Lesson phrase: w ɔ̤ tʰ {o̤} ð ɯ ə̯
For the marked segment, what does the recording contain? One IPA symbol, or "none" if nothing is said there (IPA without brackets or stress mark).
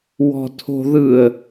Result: o̤